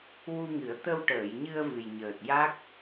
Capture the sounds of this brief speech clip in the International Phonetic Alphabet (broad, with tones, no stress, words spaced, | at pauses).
wu˧ŋɨ˨˩˦ə̯ t̪ə˧wʈəː˨˩˨jɲɨ˧ə̯ vɨ˨˩j ɲəː˨˩t̚ja˦˥k̚